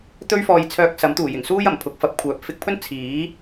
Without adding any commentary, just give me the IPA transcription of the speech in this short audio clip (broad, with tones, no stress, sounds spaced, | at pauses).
t̪ ɵ˥ ɥ f ɔː˧ j t͡sʰ œː˧ k̚ s ɐ˨˥ m t̪ uː˨˩ j ɪ˨˩ ŋ s uː˥ j ɐ˨˩ m pʰ ʊ˨˥ k̚ f ɐ˨˥ p̚ kʷʰ œː˨ p̚ f ɪ˧ k̚ pʰ ɵ˥ n t͡sʰ iː˨˥